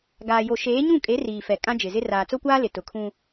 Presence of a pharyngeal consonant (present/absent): absent